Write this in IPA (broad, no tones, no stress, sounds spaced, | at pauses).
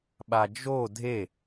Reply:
ɓ a d͡ʒ o dʱ e